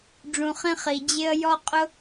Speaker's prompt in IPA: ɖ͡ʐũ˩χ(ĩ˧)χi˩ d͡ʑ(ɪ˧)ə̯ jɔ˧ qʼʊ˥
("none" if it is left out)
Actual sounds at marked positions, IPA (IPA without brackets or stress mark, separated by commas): ĩ˧, ɪ˧